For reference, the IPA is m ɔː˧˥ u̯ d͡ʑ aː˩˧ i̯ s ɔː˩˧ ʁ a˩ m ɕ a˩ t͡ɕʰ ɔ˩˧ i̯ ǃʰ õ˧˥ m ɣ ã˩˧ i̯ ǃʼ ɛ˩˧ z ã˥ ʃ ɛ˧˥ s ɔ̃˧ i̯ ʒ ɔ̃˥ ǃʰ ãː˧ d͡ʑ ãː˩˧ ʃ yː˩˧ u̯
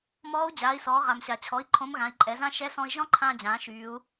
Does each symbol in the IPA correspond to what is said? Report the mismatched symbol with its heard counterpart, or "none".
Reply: none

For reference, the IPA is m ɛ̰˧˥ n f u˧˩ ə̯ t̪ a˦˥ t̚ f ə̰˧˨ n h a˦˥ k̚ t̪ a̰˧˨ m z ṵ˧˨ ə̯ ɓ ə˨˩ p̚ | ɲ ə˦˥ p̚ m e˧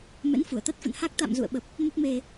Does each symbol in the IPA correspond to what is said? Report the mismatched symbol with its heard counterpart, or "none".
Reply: ɲ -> m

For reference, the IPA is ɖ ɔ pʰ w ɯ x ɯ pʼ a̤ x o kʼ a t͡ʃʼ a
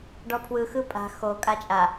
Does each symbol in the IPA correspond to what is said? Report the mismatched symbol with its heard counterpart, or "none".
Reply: none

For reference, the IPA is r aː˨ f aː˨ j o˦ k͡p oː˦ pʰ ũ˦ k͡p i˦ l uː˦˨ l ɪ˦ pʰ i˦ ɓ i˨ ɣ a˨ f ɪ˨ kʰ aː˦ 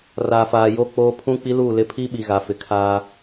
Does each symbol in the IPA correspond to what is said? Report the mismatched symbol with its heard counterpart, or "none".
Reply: none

